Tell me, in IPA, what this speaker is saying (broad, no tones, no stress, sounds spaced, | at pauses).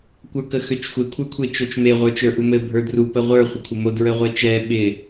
kʷ ə˞ k ə x ø t͡ʃ xʷ e kʷʰ ə˞ kʷʰ e t͡ʃ o t͡ʃ m e ʁʷ ə˞ t͡ʃ ə˞ ʔ u m ɘ bʱ ə˞ d r u p ə ʁʷ ə˞ χʷ ə kʷʰ ɪ m o d ɹ ə ʁʷ ɛ t͡ʃ ɛ ɓ ɪ